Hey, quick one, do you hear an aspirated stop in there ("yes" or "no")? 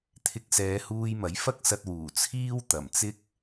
yes